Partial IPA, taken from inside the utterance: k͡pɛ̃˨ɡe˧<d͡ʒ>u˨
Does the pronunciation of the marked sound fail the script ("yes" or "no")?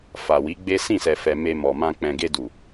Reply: yes